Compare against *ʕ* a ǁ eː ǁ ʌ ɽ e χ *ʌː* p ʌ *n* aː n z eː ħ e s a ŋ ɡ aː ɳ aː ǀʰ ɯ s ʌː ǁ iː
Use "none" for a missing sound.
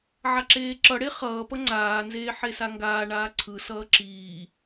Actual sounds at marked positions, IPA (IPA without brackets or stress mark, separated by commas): ʕ, ʌː, ŋ͡ǀ